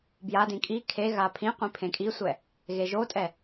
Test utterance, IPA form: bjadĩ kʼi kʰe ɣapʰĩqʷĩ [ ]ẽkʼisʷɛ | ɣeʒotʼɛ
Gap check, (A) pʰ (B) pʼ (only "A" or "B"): A